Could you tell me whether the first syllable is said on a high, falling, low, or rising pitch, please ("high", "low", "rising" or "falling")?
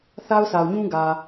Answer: high